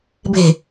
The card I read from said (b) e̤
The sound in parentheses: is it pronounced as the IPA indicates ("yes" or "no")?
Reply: yes